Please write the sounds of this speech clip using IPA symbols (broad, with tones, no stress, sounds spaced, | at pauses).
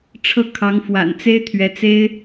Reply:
ʈ͡ʂʰ ɤ˥˩ kʰ ɑ˧˥ ŋ f w a̰˨˩ n t͡s e˥ ɪ̯ t̪ʰ ɥ ɛ˧˥ t͡s e˥ ɪ̯